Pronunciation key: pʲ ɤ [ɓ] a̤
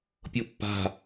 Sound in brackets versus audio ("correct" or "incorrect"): incorrect